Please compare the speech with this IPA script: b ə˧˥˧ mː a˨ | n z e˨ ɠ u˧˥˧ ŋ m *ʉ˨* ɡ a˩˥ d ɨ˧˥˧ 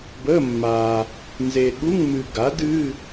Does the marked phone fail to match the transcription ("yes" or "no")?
yes